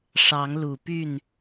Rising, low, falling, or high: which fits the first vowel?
rising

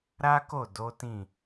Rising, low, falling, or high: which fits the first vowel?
high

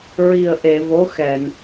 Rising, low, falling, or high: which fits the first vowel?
low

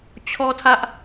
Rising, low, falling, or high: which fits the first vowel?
high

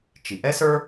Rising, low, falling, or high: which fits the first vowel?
low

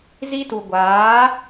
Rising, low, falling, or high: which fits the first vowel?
high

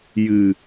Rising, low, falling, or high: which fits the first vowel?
low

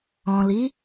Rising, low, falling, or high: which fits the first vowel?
low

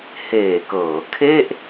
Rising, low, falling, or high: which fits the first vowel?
low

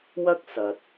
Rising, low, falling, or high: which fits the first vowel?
high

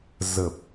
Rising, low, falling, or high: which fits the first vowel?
low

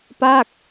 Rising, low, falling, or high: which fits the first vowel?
falling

